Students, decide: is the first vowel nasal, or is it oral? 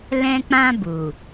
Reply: nasal